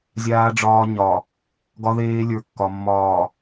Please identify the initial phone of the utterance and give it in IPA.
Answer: zʲ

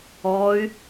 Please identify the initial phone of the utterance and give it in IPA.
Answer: ɔ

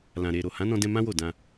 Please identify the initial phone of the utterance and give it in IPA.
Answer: l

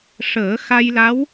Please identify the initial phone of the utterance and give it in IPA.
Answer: ʂ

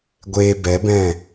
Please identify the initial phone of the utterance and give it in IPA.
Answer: ɡʷ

